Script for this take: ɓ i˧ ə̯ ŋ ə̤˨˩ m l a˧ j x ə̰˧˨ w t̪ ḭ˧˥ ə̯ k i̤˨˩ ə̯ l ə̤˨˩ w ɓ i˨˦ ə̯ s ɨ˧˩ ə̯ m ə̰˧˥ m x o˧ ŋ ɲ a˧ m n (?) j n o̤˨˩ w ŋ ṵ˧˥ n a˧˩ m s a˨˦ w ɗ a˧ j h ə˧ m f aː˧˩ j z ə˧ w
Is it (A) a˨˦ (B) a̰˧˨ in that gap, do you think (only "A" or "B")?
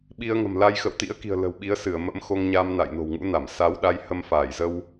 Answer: B